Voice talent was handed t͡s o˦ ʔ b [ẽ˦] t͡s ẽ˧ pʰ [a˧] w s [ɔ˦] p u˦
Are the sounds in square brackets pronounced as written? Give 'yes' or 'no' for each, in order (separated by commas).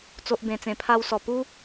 no, yes, no